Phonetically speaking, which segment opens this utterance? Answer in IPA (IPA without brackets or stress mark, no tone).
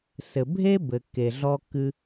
s